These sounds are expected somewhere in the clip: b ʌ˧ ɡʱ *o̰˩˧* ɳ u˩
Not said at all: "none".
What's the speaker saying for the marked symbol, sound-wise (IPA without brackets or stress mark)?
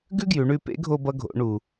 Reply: o̰˩˧